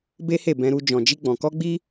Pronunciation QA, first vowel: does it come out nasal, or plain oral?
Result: oral